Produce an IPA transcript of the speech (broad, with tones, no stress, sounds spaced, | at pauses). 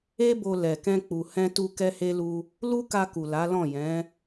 e˦ b o˧ l ɛ˨ k ɛ̃˧ k͡p u˨ h ɛ̃˧ t u˧ k ɛ˦ h e˦ l u˦ | l u˦ k a˧ k u˨ l a˨˦ l ɔ̃˦˨ j ɛ̃˨˦